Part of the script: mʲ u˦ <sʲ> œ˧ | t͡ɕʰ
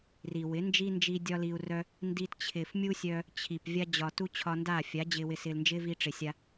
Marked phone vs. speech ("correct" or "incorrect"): correct